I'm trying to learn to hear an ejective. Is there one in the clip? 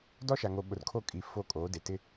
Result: yes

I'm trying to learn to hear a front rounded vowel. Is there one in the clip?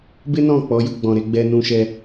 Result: no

